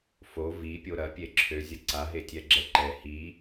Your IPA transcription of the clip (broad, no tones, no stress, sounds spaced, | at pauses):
f o v i pʲ o ɾ ɐ pʲ e ǁʰ ø zʲ ɐ ǀ a ɦ e tʲ ɛ ɡ͡ǁ ɛ ǃ ɛ h i